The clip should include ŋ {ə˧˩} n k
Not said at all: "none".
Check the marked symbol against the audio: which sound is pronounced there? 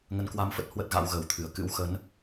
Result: ə˧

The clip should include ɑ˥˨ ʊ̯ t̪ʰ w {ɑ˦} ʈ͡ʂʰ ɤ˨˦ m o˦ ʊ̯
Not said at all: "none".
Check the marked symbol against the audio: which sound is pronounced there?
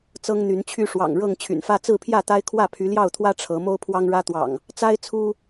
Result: ä˦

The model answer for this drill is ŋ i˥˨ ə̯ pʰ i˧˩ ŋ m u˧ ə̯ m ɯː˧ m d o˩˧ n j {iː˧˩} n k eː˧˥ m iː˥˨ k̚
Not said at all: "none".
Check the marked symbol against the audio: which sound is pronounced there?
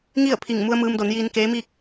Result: iː˧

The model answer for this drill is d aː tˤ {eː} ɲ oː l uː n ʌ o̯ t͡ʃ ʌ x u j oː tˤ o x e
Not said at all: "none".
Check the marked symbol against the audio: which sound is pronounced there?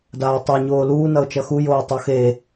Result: e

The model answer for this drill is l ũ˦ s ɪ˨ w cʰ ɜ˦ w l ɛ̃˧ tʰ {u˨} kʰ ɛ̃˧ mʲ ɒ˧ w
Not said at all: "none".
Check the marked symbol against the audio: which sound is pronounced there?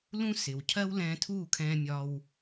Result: u˦˨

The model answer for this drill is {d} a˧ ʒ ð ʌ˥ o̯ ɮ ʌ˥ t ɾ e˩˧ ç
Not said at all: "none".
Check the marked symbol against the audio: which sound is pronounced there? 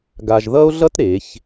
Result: ɡ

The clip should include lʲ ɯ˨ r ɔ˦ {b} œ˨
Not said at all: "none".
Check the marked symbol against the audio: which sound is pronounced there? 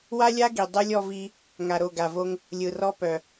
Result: p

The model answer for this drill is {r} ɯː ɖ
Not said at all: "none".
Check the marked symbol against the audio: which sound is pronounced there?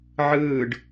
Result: ʕ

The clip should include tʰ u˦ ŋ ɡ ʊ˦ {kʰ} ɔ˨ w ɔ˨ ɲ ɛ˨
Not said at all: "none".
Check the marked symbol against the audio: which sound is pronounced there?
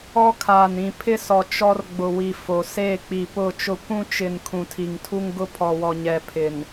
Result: pʰ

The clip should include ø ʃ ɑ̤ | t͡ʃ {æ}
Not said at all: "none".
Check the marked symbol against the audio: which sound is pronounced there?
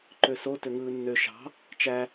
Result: æ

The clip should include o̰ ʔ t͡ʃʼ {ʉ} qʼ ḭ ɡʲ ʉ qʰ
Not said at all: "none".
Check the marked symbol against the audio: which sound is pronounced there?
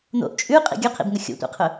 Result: ʉ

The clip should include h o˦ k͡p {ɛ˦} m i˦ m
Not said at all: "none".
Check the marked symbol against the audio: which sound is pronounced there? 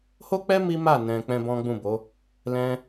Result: ɛ˦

